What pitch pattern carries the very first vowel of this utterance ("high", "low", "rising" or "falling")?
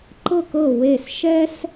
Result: falling